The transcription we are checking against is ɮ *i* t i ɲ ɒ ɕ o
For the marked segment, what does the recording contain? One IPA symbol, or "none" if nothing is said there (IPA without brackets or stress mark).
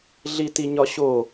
i